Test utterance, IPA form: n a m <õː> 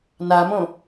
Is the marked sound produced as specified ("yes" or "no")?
no